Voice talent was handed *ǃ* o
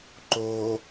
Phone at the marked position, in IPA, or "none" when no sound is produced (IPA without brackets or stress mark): ǃ